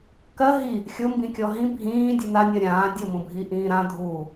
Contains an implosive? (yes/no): no